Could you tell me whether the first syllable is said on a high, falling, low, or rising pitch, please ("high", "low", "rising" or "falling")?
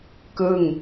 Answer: falling